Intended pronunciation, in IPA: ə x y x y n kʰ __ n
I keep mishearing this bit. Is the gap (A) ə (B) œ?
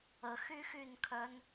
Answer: B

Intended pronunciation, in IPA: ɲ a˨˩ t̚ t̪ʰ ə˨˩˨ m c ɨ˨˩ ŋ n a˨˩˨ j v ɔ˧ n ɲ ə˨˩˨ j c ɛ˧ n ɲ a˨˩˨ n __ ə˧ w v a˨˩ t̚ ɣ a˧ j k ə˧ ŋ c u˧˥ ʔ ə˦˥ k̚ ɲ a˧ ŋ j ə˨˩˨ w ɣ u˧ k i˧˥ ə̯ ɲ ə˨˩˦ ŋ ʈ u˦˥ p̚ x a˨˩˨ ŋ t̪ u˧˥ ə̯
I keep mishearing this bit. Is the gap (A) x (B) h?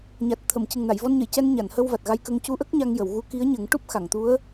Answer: B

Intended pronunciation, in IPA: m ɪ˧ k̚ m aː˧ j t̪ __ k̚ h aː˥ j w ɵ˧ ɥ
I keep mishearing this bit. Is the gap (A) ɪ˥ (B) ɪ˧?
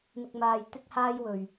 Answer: A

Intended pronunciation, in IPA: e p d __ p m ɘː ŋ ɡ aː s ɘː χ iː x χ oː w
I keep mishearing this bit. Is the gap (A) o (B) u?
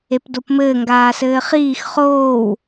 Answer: A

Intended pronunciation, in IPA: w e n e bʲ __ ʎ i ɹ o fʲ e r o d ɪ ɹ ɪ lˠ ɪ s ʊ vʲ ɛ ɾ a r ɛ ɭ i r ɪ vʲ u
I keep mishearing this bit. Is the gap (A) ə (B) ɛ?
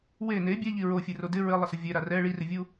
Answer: B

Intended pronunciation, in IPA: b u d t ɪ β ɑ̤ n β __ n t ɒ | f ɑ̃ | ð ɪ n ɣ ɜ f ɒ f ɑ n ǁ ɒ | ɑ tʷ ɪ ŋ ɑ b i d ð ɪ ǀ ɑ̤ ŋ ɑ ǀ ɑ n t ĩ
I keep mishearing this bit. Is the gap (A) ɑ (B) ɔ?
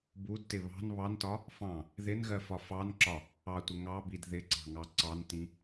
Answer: A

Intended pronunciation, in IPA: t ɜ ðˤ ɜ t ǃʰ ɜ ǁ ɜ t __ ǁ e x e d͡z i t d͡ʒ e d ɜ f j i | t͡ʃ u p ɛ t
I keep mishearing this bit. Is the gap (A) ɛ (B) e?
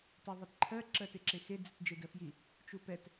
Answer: B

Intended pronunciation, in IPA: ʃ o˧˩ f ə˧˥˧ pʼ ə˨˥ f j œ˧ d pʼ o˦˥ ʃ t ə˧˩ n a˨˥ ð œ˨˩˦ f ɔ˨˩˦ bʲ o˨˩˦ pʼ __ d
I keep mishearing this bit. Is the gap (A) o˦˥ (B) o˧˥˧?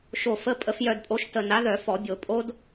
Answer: A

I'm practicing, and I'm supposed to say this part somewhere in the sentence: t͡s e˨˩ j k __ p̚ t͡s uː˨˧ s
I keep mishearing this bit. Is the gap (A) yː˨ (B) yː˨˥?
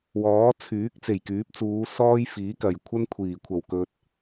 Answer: B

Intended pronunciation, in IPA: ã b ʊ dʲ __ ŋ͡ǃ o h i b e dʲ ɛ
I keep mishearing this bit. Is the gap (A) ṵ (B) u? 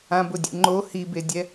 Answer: A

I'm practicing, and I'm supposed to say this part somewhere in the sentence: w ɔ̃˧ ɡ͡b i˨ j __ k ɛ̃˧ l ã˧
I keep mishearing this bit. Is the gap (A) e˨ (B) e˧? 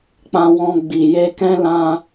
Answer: B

